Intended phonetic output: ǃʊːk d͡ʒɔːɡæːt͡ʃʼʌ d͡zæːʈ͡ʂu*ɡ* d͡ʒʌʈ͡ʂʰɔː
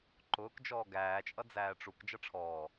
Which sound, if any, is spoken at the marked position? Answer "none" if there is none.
k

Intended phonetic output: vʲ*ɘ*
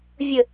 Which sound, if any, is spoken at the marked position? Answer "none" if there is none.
ɘ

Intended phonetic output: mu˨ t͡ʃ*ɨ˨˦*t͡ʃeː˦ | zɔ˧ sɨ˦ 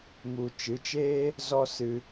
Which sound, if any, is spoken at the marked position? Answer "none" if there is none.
ɨ˨˦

